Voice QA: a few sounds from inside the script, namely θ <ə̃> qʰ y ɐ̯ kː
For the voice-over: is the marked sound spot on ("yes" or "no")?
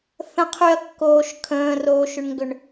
yes